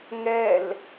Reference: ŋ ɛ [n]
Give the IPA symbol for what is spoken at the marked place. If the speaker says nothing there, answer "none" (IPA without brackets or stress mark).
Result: l